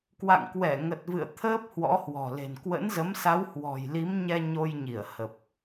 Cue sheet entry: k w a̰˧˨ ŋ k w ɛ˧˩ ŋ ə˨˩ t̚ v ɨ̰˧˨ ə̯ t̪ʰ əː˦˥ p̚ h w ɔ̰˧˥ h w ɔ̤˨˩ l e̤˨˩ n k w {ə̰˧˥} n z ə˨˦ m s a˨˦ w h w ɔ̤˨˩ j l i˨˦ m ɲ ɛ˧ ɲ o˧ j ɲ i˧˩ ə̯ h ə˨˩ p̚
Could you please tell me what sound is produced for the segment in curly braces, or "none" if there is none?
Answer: ə̰˧˥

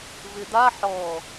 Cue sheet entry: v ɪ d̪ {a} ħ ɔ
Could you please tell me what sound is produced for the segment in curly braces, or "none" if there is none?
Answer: a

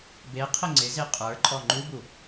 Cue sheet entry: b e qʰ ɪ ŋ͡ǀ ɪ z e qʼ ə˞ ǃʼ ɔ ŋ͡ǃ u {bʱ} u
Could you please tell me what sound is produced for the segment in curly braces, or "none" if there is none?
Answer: b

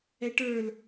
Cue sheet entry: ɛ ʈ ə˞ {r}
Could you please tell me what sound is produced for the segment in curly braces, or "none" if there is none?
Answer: l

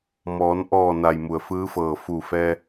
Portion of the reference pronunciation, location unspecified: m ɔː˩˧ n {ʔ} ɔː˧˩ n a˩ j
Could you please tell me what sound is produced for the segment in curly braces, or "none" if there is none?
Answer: ʔ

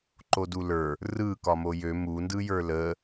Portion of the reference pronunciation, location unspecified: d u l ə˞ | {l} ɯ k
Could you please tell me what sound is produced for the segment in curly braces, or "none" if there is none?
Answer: r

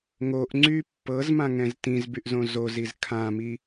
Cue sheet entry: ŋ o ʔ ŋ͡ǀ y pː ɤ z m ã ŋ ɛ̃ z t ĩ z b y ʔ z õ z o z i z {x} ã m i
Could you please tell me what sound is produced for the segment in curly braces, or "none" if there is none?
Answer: kʰ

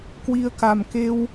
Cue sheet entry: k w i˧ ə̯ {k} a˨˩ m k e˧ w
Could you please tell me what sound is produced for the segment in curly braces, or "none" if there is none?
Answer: k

